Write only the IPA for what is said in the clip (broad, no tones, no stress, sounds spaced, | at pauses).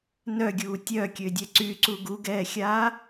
n œ ɡʲ uː tʲ œ kʲ ø dʲ ɛ ǀ y ǀ u ɡ u ɡ ɛː xʲ aː